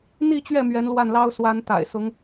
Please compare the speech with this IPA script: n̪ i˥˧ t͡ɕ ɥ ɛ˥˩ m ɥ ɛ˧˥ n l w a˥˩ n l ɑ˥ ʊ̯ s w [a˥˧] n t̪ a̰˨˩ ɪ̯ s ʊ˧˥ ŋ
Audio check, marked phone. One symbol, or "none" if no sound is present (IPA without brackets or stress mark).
a˧˥